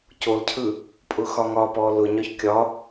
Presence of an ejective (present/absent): present